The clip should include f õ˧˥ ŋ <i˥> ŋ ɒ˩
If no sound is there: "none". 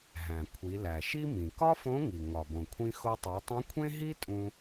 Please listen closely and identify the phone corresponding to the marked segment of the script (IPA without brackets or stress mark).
i˩